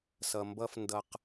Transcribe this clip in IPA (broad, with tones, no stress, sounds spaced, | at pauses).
s ʌ˨ m b ʌ˦ f n d ʌ˦ q